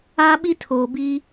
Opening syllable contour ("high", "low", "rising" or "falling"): high